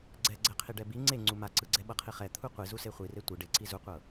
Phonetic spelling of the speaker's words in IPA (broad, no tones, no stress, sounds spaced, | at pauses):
ɡ͡ǀ ɛ ɡ͡ǀ ɛ qʰ i ɖ ɛ b i ŋ͡ǀ e ŋ͡ǀ u m a ǀ ɯ ɡ͡ǀ ɛ ɓ ɤ qʰ i χ ɛ t̪ʰ u qʷ i z u s e χʷ i r e tʷ ɯ ɖ e ǀ i z u qʷ ɤ